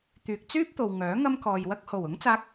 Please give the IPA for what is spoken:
t̪ yː˨ k̚ t͡s yː˥ p̚ t̪ o˨ w ŋ œː˨˥ ŋ ɐ˥ m k ɔː˨ j w ɐ˥ k̚ h o˨˩ w ʊ˨˥ ŋ t͡s aː˧ k̚

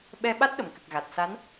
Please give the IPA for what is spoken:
ɓ ɛ˧ ɓ a˦˥ t̚ ɗ ə˨˩ m k ɨ˨˩ k̚ ɣ a˨˩ t̚ s a˧˥ n

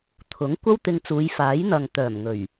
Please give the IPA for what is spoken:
t̪ʰ ʊ˨˥ ŋ kʷ ɐ˥ w t̪ ɪ˧ ŋ t͡s uː˨˧ j f aː˨˥ j n̪ ɐ˨ ŋ t̪ œː˨˩ m ŋ ɵ˨˩ ɥ

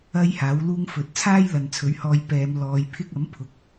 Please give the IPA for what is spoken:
ɐ˥ j h aː˨˥ w l uː˥ ŋ f ɵ˨ t̚ t͡sʰ aː˥ j l ɐ˨ n t͡sʰ ɵ˨˥ ɥ h ɔː˧ j p ɛː˨˧ m l ɔː˨˧ j pʰ ɪ˥ k̚ ɐ˨˥ m pʰ ʊ˨˥ k̚

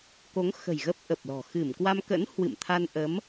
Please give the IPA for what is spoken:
k o˨˦ ŋ x ə̤˨˩ j ɣ ə˦˥ p̚ ʔ ə˨˩ p̚ l ɔ̤˨˩ x ɨ˧˩ m k w a˧ m k ə̰˧˥ n h w ɨ̰˧˨ m t̪ʰ a˧ n ʔ ə˨˦ m

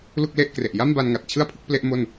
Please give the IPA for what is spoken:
l u˥˩ k̚ l e˥˩ ʔ k r e˨˩ ʔ j a˥˩ m b a˧ n ŋ a˨˩ t̚ t͡ɕʰ ɯ˥˩ a̯ pʰ ɯ˥˩ k̚ p l e˥˩ ʔ m o˥˩ n

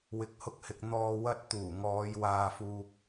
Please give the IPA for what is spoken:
w ɪ˨˥ k̚ h ʊ˧ k̚ h ɪ˨ k̚ n̪ ɔː˨ w ɐ˧ t̚ t̪ uː˨˩ ŋ ɔː˨˧ j w aː˨ f uː˨ k̚

